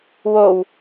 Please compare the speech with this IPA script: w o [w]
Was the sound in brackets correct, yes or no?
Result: yes